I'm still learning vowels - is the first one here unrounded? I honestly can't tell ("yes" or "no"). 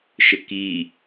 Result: yes